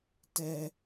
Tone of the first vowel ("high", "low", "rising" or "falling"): low